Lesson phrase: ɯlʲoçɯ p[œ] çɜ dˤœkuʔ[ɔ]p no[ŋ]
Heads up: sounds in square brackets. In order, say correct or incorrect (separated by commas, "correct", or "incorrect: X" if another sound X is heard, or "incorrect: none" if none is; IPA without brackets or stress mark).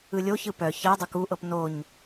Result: correct, incorrect: ɤ, incorrect: ɲ